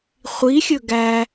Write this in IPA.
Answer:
χʷ i xʲ ɵ ɡ æ

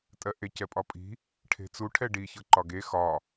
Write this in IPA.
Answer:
tʼ ɜ ʔ e c ɛ pʼ ɒ pʼ i̤ | ʈʰ e̤ t͡s u ʈʰ ɛ ɖ i ç ɤ ǃ ɒ ɡ e x ɒ

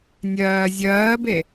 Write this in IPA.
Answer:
nʲ ɜː zʲ ɜː b e

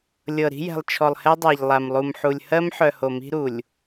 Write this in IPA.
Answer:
lʲ ɤ˨ ɾ i̤˦ j ɛ̤˨ lˠ t͡ʃʰ ɔ˨ lˠ h ɛ˦ dˤ a˨ ʎ lˠ a˨ m lˠ u˨ m ħ u˨ lʲ h ɜ˦ m ħ œ˨ h o˨ m i̤˦ ɾ u˨ lʲ

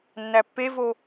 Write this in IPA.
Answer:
nː æ pː e v o

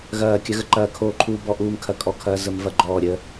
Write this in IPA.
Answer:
ɣ ɐː˦˨ kʲ ɐ˦ ɣ ə˦ ǃ ɐː˦˨ kʰ oː˦˨ ǃʰ uː˦ b ɔ˦ ʔ uː˦ m kʰ ɐ˦˨ kʼ ɔ˦˨ kʰ ɐː˦ z ə˦ m v ɐ˦˨ ɡ͡ǃ ɔː˦˨ ɾʲ əː˦

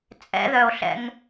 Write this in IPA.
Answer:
t͡sʼ ɛ̰ ð œ o̯ ɬ ɛ̰ ŋ

